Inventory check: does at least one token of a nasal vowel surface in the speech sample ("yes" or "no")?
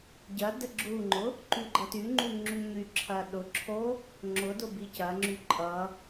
no